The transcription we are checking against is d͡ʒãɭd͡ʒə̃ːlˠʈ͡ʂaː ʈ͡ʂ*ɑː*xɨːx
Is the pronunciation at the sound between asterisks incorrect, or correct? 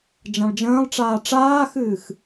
incorrect